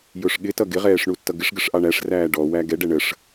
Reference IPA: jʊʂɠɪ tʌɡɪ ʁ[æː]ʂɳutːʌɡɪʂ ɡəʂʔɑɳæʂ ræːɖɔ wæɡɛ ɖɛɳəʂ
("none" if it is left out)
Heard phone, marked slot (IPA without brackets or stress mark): ɛː